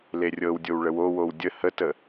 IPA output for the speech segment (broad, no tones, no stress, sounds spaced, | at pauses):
l e rʲ ɤ w dʲ o w ɭ ə w o w o w dʲ ə h ə t ə